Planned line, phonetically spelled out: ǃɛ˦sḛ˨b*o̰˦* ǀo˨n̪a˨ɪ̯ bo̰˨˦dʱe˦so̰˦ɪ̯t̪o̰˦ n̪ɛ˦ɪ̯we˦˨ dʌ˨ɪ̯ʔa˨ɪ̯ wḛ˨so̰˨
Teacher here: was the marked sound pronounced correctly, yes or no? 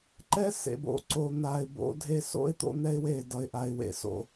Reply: no